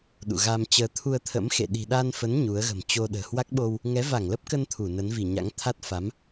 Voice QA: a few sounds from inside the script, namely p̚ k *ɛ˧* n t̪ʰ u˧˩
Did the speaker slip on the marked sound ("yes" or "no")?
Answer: yes